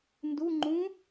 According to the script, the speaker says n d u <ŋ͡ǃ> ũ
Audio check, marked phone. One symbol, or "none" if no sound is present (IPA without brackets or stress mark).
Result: ŋ͡ǃ